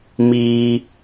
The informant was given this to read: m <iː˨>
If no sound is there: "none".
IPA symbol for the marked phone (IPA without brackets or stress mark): iː˦